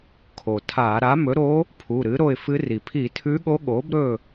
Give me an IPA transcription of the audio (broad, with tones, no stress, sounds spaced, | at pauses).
kʰ o˩ tʰ a˧˩˧ ɾ a˩˥ m ɵ˩˥ ɾ o˧˥ | pʰ u˩˧˩ ɾ ɨ˩˥ ɾ o˦˨ ɪ̯ f ɨ˧˥ r i˩ pʰ i˧˩˧ tʰ ʉ˧˥ ɠ o˧˥ ɠ o˩˥ b ɾ ɵ˦˨